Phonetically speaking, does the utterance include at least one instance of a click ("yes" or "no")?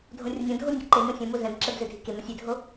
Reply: yes